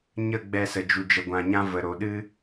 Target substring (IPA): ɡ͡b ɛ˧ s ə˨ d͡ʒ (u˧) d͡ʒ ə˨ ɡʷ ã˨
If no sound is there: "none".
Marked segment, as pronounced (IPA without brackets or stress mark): u˨